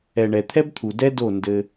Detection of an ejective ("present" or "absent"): absent